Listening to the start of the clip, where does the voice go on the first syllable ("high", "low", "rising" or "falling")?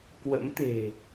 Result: rising